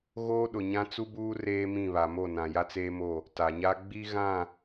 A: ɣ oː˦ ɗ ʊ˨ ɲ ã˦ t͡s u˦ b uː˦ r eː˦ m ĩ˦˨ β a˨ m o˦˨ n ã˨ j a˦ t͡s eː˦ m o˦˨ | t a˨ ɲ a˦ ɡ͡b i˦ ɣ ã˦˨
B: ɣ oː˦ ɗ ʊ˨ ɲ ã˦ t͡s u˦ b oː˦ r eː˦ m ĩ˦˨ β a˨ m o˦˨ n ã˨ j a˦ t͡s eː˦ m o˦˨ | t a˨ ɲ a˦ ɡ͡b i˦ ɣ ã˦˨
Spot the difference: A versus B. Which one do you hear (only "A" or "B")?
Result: A